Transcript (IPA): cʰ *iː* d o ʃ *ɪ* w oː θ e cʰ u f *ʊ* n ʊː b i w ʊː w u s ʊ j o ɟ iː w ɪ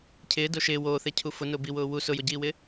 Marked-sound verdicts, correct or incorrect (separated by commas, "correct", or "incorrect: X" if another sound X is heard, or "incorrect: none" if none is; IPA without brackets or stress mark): incorrect: ɪː, incorrect: ɪː, correct